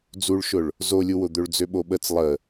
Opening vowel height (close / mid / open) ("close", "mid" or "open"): close